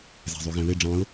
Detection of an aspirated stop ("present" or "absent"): absent